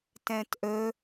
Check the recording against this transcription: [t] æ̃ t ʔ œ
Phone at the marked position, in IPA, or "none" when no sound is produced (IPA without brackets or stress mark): t